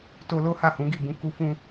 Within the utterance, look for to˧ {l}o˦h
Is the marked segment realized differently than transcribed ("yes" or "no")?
no